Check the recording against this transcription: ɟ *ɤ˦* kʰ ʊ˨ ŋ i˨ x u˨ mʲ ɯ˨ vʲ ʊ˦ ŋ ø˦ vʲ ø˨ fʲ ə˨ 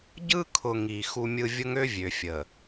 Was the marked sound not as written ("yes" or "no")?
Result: yes